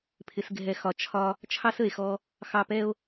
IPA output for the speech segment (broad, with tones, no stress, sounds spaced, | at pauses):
pʰ ɪ˨ s ɡʱ ɛ˨ x ɒ˨ t͡ʃʰ ɒ˧ | t͡ʃʰ ɑ˦ s ə˨ e̯ x ɔ˧ | x ɑ˧ p ɛ˦ o̯